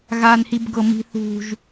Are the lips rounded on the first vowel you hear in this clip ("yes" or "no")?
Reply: no